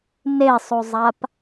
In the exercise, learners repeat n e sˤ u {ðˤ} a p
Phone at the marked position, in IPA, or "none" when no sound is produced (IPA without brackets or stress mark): zˤ